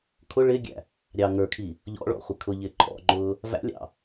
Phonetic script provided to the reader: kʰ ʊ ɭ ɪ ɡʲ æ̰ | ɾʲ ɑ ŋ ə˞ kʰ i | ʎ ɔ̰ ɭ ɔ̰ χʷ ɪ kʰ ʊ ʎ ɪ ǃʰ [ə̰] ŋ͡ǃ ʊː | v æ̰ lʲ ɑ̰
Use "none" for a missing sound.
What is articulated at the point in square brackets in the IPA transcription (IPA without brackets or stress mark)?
ɔ̰